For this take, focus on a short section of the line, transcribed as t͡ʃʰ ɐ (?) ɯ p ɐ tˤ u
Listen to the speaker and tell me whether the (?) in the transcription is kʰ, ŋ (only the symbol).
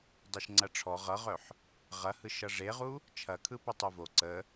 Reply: kʰ